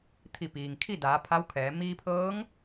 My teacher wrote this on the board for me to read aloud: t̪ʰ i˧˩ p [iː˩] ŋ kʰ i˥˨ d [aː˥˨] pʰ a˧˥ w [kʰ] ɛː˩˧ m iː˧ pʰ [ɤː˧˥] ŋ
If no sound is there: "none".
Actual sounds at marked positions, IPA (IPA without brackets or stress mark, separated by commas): iː˩, aː˩˧, kʰ, ɤː˧˥